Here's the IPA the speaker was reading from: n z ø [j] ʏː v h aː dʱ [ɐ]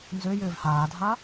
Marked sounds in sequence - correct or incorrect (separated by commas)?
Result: correct, incorrect